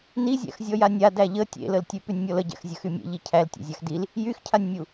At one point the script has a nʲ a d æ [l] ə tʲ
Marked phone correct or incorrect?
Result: incorrect: ʎ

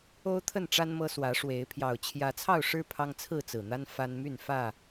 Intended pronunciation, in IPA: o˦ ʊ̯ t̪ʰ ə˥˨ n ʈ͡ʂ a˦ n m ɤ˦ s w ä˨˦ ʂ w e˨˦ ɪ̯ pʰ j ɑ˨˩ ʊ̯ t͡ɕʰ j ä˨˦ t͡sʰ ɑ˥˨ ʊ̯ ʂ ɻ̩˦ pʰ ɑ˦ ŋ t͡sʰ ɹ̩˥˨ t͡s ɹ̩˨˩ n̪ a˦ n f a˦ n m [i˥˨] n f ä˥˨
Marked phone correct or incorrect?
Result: incorrect: y˥˨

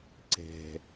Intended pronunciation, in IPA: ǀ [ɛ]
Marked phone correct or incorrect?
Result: incorrect: ɛ̤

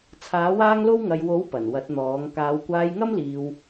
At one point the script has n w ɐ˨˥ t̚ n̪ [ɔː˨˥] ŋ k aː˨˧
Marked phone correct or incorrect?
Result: correct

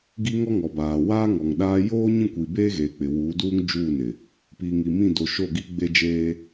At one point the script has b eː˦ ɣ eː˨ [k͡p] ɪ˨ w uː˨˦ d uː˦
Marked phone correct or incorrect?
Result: correct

